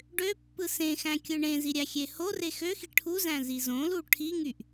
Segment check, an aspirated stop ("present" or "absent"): present